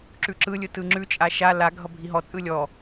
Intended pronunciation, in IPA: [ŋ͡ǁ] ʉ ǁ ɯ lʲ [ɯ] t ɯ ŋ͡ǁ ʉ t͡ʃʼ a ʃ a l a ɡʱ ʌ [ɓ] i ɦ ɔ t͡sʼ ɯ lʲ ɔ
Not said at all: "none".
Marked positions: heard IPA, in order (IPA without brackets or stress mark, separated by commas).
ǁ, ɯ, bʱ